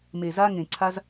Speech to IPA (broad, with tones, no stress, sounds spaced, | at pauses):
m e˨ z a˦ ŋ ẽ˨ ǀʰ a˦ z